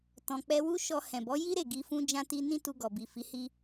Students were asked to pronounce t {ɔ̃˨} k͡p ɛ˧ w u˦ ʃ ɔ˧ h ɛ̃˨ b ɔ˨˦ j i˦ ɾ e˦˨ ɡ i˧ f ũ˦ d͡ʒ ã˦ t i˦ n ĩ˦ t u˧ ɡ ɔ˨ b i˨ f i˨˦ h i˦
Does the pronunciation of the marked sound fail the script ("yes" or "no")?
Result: no